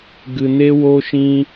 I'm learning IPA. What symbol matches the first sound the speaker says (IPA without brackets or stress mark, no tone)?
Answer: ɡ